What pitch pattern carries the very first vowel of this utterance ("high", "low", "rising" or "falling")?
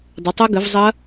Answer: rising